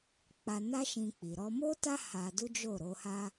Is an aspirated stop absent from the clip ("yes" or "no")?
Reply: yes